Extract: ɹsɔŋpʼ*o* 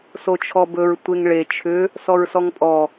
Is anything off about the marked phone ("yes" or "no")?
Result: yes